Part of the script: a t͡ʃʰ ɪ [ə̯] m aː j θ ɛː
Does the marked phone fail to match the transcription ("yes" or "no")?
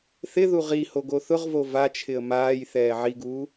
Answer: no